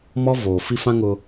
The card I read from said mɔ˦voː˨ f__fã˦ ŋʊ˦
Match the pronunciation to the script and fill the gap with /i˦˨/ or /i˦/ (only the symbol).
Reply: i˦